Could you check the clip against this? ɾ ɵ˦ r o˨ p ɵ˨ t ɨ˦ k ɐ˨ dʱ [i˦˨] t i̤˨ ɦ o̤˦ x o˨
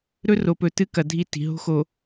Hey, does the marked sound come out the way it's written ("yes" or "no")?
yes